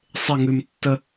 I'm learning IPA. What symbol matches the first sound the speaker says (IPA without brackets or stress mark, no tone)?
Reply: sˤ